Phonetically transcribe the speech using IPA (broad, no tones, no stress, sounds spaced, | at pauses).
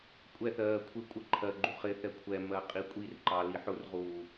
kʷʼ ɛ θ ɜː kʷʰ ɪ kʷʼ ə ǃʰ ɜ ɡ͡ǃ u χ ɪ θ ɛ kʷʰ ɛ m ɜ qʼ i kʷʼ i r ǃ ɑ l i ħ ʊ r ʁ uː